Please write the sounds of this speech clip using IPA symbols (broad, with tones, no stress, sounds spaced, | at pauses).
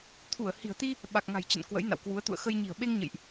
t̪ʰ u˧˩ ə̯ h i̤˨˩ ə̯ t̪ i˧ | ɓ a˨˩ k̚ ŋ a̤˨˩ j t͡ɕ ə̰˧˨ n k w ə̰˧˥ j n a̰˧˨ w k w u˨˦ ə̯ t̪ ṵ˧˨ ə̯ x ə˧ j ɲ i̤˨˩ ə̯ ɓ e˧ ŋ ɲ ə̰˧˨ j ʔ